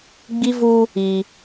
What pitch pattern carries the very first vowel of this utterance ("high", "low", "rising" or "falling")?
high